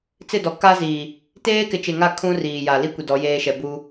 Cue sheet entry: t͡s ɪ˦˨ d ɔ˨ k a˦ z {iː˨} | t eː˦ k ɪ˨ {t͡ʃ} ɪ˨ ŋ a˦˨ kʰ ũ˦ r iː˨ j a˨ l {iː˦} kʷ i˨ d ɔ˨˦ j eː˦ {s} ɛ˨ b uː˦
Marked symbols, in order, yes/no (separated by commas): yes, yes, no, no